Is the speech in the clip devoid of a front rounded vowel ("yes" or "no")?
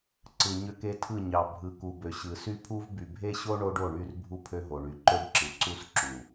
no